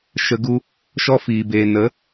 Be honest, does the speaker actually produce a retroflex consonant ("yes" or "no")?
no